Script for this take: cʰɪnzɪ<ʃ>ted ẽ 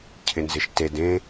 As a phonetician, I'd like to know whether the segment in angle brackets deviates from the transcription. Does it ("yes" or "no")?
no